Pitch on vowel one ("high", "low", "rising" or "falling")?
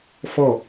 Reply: falling